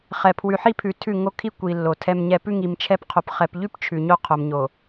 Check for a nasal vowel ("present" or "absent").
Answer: absent